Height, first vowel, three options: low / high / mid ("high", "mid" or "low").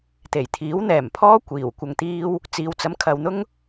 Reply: mid